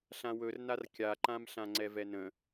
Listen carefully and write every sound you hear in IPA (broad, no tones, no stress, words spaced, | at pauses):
ɬãwɵrnar kʲaǃãm ɬãŋ͡ǀɛvɛnə̃